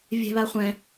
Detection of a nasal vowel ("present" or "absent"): present